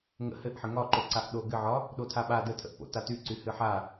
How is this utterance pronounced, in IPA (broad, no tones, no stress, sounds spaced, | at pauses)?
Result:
ŋ ə̰ h ɘ ʔ ħ ə ŋ ɒ ǃ o ǀ a ʔ ɗ o ɡ ɘ ʕ ɒ | ɗ o tʰ a ɓ a d ə tʰ ə̰ ʔ p o̰ t a t y ǀ y h ɨ ħ a